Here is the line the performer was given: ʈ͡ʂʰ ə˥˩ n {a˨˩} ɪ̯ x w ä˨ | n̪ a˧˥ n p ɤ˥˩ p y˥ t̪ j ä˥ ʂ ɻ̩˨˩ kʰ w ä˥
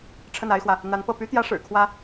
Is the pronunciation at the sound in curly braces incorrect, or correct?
incorrect